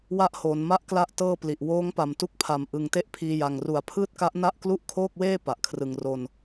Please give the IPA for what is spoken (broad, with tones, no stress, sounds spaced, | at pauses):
w a˦˥ ʔ h oː˩˦ n m a˦˥ ʔ k l a˦˥ ʔ t ɤː˥˩ p l i˨˩ ʔ w oː˦˥ ŋ p a˨˩ m t u˦˥ k̚ pʰ a˨˩ m ʔ ɯ˨˩ ŋ t e˥˩ ʔ pʰ iː˧ j a˨˩ ŋ r u˨˩ a̯ pʰ ɯː˥˩ t̚ k a˦˥ ʔ n a˥˩ ʔ k l u˥˩ ʔ kʰ oː˥˩ k̚ w eː˥˩ p a˨˩ ʔ kʰ r ɯ˨˩ ŋ r o˧ n